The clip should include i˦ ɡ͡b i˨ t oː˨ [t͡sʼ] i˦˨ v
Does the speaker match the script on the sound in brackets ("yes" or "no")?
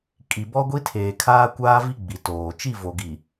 no